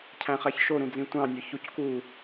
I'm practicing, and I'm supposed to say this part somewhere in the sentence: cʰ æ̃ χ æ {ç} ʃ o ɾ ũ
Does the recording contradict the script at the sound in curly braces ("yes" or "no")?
no